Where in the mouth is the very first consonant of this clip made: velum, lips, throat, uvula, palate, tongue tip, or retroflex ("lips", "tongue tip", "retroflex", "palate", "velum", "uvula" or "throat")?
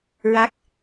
tongue tip